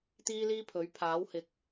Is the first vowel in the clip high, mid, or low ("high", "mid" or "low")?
high